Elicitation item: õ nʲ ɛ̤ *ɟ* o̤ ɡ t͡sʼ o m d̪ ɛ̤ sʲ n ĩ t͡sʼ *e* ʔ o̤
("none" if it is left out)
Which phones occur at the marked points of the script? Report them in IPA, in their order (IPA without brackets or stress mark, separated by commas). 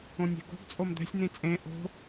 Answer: ɡ, ẽ